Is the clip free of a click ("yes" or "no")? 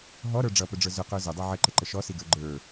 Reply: no